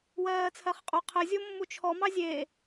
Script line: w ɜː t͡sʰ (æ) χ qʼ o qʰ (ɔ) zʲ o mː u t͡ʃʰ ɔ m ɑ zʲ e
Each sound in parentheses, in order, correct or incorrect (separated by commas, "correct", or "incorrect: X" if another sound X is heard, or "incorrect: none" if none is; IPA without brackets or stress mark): incorrect: ɜ, incorrect: ə